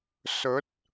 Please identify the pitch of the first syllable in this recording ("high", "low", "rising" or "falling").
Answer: rising